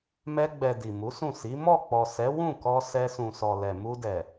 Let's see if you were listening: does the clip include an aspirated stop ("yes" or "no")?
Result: no